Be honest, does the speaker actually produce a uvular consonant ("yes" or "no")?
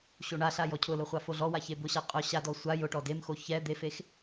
yes